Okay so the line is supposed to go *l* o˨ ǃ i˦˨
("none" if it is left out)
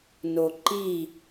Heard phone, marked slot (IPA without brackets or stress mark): n